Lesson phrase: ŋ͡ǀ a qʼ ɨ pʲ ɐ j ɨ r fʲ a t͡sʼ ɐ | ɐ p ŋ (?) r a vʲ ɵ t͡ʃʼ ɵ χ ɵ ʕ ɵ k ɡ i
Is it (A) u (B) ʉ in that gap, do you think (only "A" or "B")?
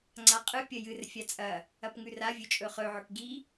B